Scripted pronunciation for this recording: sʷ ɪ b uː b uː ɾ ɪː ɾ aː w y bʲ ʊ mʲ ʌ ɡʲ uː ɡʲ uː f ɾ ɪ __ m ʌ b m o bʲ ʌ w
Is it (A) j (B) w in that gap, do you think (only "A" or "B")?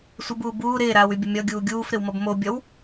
B